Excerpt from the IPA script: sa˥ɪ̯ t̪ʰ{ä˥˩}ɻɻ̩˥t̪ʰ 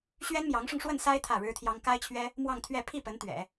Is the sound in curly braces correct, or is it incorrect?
correct